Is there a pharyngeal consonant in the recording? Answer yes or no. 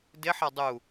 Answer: yes